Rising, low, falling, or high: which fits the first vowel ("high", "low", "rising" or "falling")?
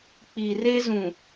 low